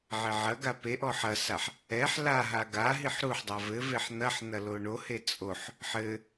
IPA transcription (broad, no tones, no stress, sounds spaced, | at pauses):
ʕ e ʕ ɐ ɡ a p e ʔ ɔ ħ ɐ s a ħ | ɛ ħ l a ɦ a ɡ a ɦ i ħ ɾ u ħ dˤ a v ɘ v e ħ n̪ ɐ ħ n̪ ɐ l o ɳ o h e t͡sʼ o ħ | ħ ɘ